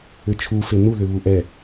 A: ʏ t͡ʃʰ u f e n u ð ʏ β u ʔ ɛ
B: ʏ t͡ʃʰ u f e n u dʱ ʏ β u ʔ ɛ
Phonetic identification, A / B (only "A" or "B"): A